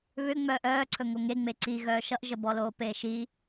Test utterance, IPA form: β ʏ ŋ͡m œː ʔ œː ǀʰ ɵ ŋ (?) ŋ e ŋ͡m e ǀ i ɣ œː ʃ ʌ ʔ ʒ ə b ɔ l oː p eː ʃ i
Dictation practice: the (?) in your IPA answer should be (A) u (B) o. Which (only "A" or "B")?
B